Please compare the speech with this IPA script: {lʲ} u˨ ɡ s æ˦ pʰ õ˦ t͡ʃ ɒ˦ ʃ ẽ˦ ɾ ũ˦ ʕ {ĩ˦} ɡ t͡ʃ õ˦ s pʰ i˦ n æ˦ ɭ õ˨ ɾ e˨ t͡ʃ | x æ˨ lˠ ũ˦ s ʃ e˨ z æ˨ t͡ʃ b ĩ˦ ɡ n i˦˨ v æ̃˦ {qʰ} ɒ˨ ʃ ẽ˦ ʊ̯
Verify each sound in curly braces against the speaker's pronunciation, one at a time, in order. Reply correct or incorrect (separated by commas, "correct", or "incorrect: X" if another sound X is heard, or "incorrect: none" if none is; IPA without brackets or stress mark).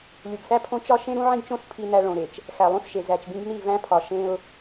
correct, correct, incorrect: pʰ